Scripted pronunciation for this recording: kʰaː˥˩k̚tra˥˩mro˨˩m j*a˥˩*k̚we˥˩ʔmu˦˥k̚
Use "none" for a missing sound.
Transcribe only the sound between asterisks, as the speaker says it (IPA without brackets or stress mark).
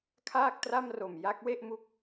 a˦˥